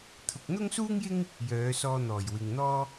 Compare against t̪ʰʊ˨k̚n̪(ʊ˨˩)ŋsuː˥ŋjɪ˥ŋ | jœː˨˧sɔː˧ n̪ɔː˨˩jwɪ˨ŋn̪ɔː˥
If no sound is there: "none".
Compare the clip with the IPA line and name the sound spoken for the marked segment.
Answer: ʊ˥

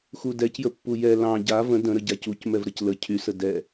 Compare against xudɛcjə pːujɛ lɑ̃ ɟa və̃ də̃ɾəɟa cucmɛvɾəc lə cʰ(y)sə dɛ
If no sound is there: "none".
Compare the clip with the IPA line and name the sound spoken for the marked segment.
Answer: y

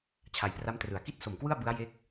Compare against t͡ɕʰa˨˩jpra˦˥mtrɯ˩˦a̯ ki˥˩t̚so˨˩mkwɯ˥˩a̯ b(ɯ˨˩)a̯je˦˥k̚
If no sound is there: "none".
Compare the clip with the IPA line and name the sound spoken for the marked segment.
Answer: ɯ˦˥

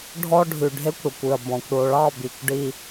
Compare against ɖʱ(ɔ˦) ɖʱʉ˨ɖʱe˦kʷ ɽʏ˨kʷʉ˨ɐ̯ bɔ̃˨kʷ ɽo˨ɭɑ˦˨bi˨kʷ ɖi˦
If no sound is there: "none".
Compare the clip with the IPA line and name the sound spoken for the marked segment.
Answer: ɔ˦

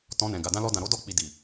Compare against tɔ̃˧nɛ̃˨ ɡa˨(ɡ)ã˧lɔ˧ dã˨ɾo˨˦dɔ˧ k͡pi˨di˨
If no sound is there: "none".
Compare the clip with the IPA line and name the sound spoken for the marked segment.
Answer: d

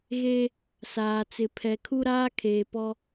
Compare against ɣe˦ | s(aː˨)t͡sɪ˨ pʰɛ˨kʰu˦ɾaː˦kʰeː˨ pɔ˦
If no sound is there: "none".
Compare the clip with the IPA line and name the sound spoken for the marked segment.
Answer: aː˨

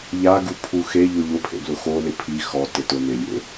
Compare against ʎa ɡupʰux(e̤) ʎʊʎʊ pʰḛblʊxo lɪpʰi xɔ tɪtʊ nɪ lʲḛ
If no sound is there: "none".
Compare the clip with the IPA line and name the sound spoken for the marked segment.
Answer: e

